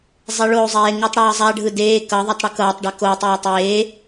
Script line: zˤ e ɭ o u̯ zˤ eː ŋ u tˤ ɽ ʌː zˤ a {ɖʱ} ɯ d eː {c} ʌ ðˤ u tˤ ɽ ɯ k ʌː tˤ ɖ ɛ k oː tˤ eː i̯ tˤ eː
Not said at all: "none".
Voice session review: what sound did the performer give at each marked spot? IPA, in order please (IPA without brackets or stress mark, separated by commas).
ɖʱ, k